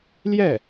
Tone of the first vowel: falling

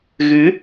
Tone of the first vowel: rising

